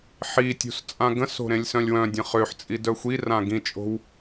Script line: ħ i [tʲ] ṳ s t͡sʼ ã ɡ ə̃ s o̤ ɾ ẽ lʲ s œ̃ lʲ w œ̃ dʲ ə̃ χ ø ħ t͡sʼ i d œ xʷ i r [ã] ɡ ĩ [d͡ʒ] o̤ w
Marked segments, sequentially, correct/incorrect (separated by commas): correct, correct, incorrect